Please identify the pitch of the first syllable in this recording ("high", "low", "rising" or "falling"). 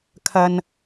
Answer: low